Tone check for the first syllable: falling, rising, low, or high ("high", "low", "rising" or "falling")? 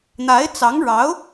rising